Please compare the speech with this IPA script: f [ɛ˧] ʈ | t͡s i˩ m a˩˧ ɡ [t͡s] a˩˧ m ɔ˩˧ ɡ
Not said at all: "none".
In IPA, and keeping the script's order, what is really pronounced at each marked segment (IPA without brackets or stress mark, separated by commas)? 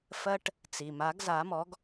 ɜ˧, z